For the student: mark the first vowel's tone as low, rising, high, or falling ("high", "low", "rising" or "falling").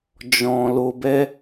low